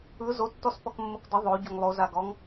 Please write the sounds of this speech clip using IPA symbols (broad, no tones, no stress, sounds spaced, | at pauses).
ɯ z o tː ɔ s p ɔ k mː o k d ə ðˤ o ɟ o ŋ lˠ o z a ɡ ɔ ŋ